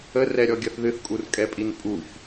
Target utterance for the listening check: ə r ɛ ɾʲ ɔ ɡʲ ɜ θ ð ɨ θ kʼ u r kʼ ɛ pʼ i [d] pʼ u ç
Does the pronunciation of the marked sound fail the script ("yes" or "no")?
yes